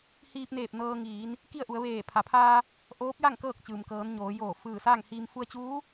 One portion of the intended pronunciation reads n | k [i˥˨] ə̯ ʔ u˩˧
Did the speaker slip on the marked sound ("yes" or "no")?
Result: no